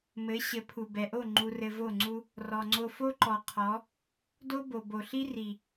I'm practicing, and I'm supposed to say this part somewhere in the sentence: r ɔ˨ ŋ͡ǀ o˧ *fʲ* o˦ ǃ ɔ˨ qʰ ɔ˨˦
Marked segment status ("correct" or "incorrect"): incorrect